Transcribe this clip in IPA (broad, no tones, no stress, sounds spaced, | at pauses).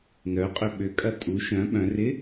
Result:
n œ qʼ ʏ ɓ ʏ kʼ ɐ tʼ u ʃ œ̃ ɓ œ̃ r ɪ